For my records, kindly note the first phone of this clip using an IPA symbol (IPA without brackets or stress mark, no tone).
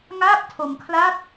ŋ